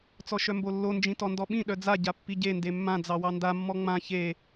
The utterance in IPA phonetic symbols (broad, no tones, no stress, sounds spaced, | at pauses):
t͡s ɔ ʃ œ m b o lː o n d͡ʒ ĩ t ɔ n d ɔ ɓ ĩ ɗ œ d͡z a ɟ a pː i ɟ e n d e mː ã d͡z ɑ w ɑ n d a mː ɔ ŋ͡m ã ç e